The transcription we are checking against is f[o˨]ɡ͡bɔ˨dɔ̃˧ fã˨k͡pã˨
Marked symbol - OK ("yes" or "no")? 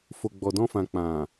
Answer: yes